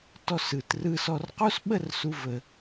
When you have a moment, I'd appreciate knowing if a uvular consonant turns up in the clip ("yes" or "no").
yes